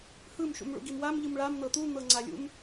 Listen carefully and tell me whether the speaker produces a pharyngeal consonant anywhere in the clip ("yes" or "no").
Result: no